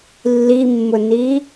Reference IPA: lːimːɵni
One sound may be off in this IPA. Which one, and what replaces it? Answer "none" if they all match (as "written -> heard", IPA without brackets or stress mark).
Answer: ɵ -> ʊ